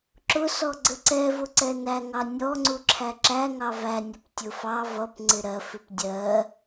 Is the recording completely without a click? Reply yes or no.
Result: no